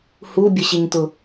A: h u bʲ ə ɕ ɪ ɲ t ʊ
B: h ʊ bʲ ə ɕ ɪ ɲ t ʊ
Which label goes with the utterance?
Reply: A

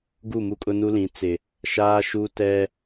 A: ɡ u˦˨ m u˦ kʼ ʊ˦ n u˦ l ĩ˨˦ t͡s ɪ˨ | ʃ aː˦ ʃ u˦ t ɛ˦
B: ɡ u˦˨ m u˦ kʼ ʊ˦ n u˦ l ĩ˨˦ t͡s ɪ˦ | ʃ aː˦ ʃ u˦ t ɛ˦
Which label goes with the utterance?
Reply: A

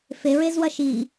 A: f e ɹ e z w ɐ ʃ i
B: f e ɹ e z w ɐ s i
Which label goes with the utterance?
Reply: A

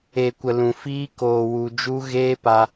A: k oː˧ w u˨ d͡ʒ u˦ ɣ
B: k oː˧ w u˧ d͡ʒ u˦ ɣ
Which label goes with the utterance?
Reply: B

